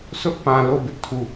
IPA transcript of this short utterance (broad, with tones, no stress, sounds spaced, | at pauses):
s ʊ˦ ʔ p ã˨ l o˦˨ b ɪ˦ ʔ tʰ u˦˨